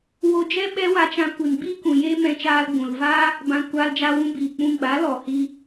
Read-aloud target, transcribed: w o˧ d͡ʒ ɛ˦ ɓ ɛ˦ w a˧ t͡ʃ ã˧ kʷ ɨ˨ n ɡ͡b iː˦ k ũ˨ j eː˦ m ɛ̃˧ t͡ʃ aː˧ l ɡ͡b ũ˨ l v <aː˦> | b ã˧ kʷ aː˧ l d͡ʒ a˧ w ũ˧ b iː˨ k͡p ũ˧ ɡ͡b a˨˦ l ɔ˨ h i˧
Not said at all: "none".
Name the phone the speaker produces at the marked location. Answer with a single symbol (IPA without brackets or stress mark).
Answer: aː˦